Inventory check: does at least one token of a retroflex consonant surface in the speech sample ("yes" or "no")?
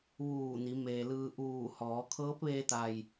no